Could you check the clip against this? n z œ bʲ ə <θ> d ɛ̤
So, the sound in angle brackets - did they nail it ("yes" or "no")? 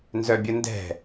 no